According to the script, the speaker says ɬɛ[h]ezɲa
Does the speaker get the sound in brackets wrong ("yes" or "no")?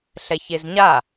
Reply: yes